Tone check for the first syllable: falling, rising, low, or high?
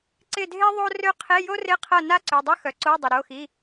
falling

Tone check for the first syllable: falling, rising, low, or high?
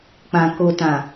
low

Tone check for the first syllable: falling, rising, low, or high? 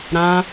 high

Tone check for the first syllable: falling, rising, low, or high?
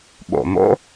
low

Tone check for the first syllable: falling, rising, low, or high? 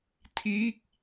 falling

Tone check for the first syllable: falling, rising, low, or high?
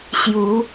rising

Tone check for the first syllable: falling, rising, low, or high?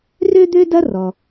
high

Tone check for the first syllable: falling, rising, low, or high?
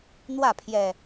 falling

